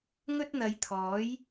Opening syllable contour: high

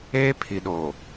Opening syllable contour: high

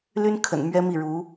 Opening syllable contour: high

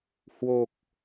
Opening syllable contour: low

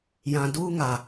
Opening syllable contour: low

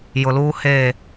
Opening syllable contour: low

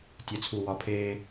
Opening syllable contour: low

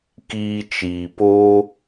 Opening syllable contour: high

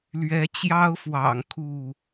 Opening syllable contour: rising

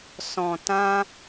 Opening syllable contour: low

